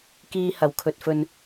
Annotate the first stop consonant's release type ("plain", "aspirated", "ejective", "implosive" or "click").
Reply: plain